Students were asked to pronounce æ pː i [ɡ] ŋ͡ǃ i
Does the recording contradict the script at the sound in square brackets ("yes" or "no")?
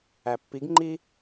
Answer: no